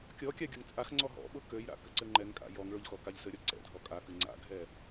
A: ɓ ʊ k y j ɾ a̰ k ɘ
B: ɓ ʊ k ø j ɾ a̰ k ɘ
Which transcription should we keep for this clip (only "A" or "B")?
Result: B